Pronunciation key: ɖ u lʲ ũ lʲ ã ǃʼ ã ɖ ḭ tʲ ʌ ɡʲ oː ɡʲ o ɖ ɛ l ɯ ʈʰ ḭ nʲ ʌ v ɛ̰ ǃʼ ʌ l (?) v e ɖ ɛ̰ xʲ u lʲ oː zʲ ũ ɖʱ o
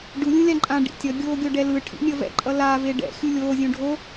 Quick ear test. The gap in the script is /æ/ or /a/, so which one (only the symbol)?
a